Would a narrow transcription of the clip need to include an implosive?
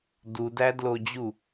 no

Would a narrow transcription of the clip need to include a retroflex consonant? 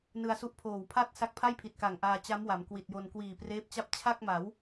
no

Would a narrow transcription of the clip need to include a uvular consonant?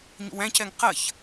yes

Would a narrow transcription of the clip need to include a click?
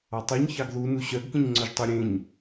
yes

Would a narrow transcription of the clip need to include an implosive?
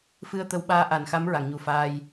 yes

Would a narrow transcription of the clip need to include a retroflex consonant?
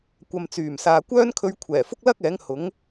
no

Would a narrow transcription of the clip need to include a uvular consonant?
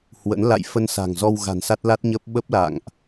no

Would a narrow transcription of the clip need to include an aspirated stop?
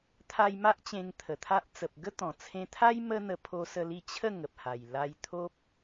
yes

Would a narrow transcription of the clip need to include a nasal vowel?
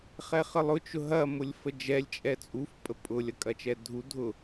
no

